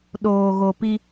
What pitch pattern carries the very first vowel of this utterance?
low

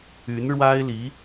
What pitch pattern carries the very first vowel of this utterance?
rising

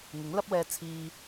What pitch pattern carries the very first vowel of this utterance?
rising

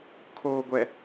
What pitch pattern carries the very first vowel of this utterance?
low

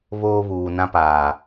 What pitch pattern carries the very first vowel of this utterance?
high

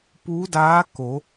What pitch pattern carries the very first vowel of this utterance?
rising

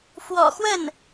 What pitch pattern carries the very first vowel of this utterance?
low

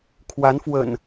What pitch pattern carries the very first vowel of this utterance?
rising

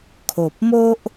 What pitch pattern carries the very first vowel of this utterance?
low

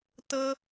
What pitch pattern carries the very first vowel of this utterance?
high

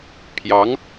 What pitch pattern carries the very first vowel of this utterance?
rising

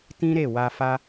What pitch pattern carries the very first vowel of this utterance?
high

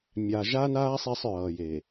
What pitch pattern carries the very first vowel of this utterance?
low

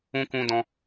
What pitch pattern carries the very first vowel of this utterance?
high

